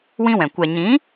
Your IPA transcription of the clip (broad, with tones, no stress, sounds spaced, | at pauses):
w ĩ˦ w ɛ̃˨ kʷ ɛ˨ ɲ ĩ˨˦